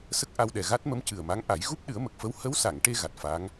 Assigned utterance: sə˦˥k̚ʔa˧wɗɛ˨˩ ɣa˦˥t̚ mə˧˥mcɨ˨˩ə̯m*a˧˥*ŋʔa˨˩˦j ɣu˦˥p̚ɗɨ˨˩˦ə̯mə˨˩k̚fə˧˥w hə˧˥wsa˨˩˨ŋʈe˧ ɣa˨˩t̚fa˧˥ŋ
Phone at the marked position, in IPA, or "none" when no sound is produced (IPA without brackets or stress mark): a˧˥